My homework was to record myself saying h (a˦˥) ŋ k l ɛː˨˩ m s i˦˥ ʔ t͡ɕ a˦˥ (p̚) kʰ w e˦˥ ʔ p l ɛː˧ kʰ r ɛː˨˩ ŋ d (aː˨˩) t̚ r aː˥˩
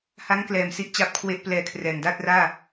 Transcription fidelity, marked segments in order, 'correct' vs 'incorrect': correct, correct, incorrect: aː˥˩

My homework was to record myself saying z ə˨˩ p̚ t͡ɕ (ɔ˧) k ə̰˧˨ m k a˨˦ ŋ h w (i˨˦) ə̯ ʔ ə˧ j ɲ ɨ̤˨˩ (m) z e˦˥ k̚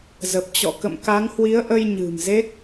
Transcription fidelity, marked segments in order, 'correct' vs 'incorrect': incorrect: ɔ̰˧˨, correct, correct

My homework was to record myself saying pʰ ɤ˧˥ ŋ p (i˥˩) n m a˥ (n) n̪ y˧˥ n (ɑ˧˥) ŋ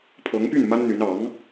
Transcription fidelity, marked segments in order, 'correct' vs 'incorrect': incorrect: y˥˩, correct, correct

